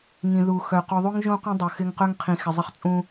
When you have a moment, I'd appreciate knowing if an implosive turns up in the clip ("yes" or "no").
no